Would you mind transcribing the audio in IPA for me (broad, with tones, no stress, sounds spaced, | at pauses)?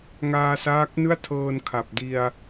ŋ aː˧ s aː˦˥ k̚ n ɯ˥˩ a̯ tʰ ɤː˧ n kʰ a˨˩ p̚ d i˧ a̯